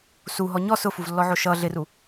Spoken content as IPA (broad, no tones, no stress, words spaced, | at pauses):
suɦɔ ɲɔ sʊfuvlːɔʕo ʃʌ ɮɪru